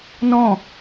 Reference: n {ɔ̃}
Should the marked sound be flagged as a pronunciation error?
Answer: no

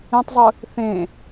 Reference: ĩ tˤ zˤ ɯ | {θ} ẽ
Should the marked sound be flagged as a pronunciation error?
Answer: no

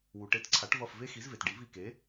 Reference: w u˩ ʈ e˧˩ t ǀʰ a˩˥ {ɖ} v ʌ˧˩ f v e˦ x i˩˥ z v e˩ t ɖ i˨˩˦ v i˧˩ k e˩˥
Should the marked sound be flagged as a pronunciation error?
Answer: yes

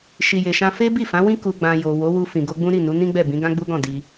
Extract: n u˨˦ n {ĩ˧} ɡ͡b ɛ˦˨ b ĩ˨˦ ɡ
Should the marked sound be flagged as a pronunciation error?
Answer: yes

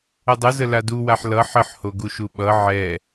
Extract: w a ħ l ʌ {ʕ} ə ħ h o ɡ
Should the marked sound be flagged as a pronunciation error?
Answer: yes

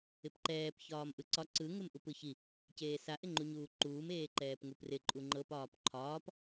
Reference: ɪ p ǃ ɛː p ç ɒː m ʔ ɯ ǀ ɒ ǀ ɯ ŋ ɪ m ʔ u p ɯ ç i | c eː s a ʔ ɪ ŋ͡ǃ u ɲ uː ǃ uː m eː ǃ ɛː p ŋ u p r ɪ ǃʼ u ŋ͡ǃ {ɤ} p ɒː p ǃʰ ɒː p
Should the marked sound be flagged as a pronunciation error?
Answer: no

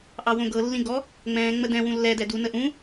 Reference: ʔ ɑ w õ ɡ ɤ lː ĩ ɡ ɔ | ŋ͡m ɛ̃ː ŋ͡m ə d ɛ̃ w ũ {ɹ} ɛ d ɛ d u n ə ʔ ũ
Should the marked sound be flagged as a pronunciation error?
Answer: yes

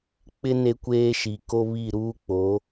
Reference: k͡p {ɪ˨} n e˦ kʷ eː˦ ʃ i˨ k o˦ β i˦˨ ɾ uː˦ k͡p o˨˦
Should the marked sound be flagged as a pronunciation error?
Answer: yes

